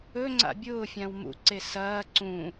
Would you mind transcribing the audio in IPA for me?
ɵŋ͡ǀa̰ bʲʊːfʲãw mṵǀe sɐː ǀũ

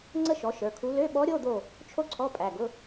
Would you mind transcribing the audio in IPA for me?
ŋ͡ǀə˥ʃɔ˩˥ʃə˞˩˧˩kʰu˧˥ lø˧˥˧ɓɔ˧˥ ɾʲo˧˥˧d̪o˦˨ | t͡ʃʰo˥ǀʰɔ˧˥˧pʼæ˩˧˩ɡʊ˧˥˧

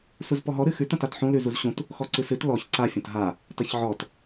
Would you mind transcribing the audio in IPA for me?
suzpɔɦɔ ɾɨxʉt ɐ̃tatħũ lʉzuzɕũt | xɔǀɨsɨt lɔç ǀa fʲɐ̃tɦa | tɐçʕɔt

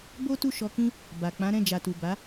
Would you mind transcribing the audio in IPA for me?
bo˦tu˦˨ʃɔ˧kĩ˦ | ba˨k͡pã˨˦ɾɛ̃˦˨ d͡ʒa˨tu˨ba˨˦

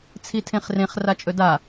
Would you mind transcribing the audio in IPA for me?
t͡sʰitʰẽχrẽχ rat͡ʃʼɵda

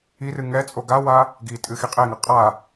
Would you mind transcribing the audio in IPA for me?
irɨ ŋɛt͡sʼo ɡawa | ɡitʼɨ xiqʼeŋɐ qʼa

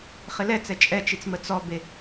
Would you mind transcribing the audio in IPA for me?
χɪlɛt͡sɛ t͡ʃʼɛt͡ʃit͡s mət͡sɔbe

